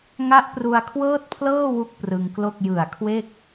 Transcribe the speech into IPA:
ŋ a˦˥ ʔ p r u˧ a̯ kʰ w ɤː˥˩ t̚ pʰ l ɤː˥˩ w u˥˩ k̚ p r ɯ˧ ŋ k l o˥˩ k̚ j ɯ˨˩ a̯ kʰ w e˥˩ k̚

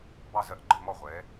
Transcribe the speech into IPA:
b ɑ˥˨ z ɜ˥˨ ʔ ɡ͡ǃ ə˥˨ m ɔ˥˨ ʁʷ ɛ˨˦

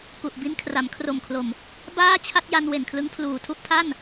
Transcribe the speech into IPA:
k u˨˩ ʔ b i˦˥ n kʰ r a˩˦ m kʰ r o˨˩ m kʰ l o˨˩ m | b aː˥˩ t͡ɕʰ a˥˩ t̚ j a˧ n w e˨˩ n kʰ l ɯ˦˥ ŋ pʰ l uː˨˩ tʰ u˥˩ ʔ pʰ a˥˩ n

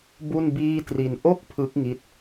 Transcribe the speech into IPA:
b u˥˩ n b iː˥˩ t r i˧ n ʔ o˥˩ k̚ pʰ ɯ˦˥ k̚ ŋ i˦˥ t̚

